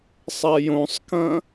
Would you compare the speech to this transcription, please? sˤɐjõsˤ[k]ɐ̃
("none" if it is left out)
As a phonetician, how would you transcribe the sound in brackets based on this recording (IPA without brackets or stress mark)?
k